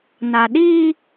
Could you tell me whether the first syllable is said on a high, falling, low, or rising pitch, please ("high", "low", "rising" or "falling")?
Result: low